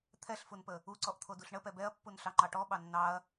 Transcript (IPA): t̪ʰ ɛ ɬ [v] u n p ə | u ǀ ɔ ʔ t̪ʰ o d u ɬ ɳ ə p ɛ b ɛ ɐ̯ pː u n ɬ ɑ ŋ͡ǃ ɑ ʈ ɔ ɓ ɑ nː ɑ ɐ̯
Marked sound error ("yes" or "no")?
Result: yes